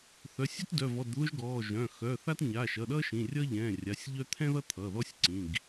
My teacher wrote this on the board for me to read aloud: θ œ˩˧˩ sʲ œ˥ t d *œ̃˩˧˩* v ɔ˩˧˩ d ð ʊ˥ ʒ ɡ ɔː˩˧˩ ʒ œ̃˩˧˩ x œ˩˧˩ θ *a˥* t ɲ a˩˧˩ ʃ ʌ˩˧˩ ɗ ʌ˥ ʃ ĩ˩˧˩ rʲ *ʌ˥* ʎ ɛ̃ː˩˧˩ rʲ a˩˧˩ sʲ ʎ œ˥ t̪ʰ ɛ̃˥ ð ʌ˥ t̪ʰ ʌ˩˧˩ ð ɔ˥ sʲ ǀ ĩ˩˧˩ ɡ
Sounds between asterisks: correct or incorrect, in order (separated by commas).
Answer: incorrect, correct, correct